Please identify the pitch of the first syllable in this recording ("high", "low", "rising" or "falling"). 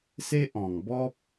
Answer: high